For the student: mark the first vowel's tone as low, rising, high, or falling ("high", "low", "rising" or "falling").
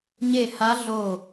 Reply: falling